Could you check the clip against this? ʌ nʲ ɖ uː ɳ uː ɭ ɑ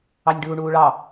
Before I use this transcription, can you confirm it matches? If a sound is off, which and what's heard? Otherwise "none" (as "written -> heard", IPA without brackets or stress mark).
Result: ʌ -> ɑ